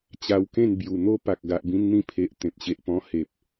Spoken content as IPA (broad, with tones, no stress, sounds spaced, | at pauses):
t͡ɕ a˧ w k ẽ˥˧ n b j u˨˩ n̪ o˦ p a˨ k̚ ɡ a˨ ʔ b ĩ˧ n n̪ ĩ˧ pʰ e˨ ʔ t̪ ẽ˨ p̚ ɕ e˨ ʔ p ɔ̃˧ h e˨ p̚